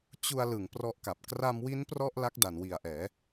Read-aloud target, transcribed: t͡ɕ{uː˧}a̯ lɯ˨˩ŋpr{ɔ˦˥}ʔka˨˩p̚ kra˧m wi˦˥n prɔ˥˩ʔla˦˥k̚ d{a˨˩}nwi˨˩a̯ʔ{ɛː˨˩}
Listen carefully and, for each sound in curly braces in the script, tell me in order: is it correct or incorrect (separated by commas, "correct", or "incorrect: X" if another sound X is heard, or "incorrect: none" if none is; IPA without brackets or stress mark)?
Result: incorrect: u˧, correct, correct, incorrect: ɛː˩˦